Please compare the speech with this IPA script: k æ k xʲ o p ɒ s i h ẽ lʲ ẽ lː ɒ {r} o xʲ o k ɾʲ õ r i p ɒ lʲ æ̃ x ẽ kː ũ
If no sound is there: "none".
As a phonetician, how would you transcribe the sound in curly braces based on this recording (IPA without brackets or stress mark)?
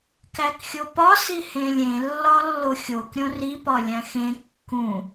lː